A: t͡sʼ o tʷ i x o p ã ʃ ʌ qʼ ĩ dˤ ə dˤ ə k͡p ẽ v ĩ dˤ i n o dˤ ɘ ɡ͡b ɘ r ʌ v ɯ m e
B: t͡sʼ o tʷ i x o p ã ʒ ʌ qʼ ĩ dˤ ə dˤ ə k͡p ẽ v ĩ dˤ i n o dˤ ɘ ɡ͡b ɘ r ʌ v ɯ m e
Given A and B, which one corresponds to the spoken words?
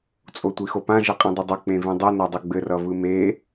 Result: B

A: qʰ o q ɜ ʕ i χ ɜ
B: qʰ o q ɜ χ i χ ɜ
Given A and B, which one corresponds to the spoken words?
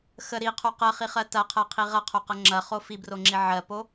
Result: B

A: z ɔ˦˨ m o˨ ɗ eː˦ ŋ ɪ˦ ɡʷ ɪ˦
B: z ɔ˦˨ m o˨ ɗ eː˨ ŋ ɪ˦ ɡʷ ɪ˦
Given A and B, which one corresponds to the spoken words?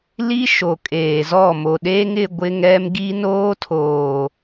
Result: A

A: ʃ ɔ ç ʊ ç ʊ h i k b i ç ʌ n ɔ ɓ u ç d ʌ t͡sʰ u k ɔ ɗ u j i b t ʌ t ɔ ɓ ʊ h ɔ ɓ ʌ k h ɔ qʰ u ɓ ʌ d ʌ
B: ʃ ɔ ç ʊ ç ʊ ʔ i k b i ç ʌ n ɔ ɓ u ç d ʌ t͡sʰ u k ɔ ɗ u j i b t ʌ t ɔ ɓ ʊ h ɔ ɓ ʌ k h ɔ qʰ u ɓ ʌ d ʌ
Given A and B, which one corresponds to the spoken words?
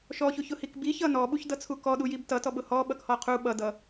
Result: A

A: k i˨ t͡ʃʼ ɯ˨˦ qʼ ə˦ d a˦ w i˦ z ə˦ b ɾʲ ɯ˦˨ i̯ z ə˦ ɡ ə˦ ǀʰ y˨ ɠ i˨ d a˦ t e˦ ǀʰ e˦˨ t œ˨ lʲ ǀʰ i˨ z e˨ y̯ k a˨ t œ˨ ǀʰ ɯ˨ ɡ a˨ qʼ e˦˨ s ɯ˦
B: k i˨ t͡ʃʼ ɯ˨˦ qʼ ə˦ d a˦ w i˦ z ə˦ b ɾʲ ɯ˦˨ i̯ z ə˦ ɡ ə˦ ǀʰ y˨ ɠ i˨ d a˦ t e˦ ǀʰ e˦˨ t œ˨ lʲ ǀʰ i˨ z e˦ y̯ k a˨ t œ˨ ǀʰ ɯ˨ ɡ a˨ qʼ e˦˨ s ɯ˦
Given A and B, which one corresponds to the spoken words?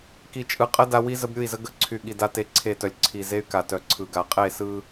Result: B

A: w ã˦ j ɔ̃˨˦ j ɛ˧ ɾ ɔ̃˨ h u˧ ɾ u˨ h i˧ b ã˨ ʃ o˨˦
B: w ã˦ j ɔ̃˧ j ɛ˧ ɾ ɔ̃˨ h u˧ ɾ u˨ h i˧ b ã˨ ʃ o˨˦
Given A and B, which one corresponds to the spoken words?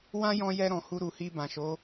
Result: B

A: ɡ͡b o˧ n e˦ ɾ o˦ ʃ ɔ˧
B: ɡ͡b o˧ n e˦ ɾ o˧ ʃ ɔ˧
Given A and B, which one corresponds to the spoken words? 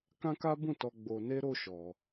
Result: A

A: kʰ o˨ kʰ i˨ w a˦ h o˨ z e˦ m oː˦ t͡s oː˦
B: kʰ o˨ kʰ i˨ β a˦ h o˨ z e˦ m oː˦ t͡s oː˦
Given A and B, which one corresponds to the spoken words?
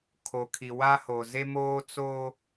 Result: A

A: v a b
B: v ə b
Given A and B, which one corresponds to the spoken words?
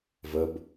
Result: B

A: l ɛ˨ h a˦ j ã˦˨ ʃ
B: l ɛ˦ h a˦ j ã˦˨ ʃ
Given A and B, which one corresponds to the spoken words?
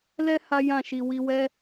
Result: B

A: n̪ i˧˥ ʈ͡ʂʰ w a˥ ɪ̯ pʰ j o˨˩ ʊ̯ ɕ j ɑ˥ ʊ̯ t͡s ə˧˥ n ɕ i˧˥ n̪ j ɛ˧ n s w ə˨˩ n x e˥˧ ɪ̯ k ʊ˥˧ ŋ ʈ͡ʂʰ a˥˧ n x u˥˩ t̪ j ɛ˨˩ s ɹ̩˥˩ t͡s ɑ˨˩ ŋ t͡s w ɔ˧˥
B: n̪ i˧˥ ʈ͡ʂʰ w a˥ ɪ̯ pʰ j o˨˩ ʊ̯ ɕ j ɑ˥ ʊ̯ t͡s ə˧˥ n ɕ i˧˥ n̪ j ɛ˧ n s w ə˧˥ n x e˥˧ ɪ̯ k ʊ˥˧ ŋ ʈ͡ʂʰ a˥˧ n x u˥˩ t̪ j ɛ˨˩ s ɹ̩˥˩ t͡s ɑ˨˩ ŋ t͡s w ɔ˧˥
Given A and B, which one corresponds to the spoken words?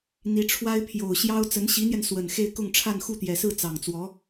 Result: A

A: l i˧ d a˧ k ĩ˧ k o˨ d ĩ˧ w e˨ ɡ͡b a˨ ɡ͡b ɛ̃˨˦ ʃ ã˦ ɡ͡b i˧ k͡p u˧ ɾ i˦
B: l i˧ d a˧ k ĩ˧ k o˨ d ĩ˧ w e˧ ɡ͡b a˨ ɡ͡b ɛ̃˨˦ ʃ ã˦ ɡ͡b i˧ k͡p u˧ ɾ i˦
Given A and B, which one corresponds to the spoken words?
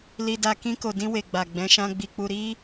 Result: A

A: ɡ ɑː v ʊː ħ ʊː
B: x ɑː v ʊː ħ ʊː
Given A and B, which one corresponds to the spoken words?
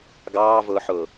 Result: A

